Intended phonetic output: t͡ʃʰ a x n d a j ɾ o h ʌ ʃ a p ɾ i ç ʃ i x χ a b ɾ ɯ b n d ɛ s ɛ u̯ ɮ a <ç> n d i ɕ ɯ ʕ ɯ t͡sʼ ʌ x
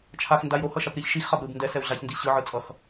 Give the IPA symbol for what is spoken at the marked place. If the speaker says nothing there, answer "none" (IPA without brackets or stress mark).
ç